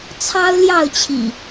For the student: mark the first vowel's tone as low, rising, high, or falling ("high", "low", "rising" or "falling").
high